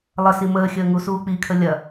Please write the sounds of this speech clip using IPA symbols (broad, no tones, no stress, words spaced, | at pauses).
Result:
lˠəsi məːxʲəː ŋusuːk͡pikʰə lʲɐ